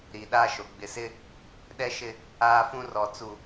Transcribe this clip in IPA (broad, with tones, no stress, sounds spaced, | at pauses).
ɾ iː˨ ɗ aː˦ ʃ o˨ ɡ͡b ɪ˨ s ɪ˦ | ɗ ɛ˦ ʃ ɪ˦ | aː˦ f ũ˦ r ɔ˨ t͡s u˨